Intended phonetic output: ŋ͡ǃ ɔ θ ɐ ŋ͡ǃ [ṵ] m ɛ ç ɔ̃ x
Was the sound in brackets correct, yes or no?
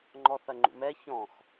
yes